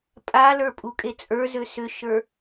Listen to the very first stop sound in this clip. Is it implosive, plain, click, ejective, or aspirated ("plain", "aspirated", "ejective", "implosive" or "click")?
ejective